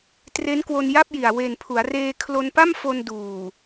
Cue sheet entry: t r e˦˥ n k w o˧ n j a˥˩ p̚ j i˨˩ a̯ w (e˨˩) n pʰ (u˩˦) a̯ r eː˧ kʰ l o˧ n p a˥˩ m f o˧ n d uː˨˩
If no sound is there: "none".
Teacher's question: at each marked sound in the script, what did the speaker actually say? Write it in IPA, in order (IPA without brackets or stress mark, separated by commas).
e˨˩, u˩˦